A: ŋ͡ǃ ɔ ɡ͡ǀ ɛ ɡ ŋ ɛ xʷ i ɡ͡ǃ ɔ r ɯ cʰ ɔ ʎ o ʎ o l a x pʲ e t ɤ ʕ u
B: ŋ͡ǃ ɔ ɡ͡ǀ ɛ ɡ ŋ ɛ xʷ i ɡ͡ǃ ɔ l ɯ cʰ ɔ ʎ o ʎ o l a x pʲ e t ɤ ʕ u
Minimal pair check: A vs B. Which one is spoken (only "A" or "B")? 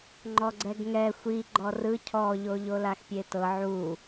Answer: A